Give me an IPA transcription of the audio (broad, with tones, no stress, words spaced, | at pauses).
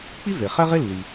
k͡pi˥ve˩ χɛ˥ʁe˥lːi˩